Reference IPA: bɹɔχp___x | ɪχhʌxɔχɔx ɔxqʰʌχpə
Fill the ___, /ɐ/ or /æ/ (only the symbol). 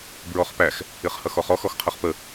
æ